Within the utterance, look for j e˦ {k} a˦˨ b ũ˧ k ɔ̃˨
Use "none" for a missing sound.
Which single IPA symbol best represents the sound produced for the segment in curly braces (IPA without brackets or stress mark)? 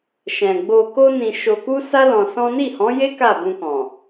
k